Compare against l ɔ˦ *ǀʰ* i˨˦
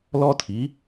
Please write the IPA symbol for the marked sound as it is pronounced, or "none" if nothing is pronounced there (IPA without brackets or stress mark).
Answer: tʰ